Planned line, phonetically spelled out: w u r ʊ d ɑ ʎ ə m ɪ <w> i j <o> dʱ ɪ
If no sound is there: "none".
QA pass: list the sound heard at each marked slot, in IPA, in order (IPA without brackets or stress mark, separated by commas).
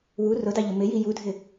j, u